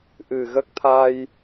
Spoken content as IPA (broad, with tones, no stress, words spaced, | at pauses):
ʔɨ˨˩ɣə˦˥k̚t̪ʰa˧j